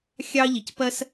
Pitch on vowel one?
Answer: high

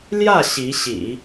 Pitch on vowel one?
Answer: falling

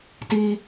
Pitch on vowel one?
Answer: high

